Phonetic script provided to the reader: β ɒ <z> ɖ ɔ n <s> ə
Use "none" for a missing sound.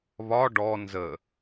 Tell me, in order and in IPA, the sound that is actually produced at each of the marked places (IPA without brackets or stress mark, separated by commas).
none, z